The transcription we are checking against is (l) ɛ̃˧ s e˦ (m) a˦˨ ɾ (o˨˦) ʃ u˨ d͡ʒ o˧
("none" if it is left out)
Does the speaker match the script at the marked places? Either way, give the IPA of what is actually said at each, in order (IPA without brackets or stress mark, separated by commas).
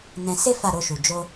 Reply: n, f, o˧